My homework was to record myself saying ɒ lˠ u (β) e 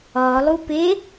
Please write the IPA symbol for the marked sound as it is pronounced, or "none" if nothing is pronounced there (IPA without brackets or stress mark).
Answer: p